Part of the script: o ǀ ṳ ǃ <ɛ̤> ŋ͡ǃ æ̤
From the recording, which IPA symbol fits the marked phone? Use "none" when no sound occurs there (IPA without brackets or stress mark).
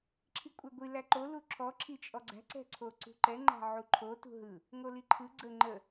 ɛ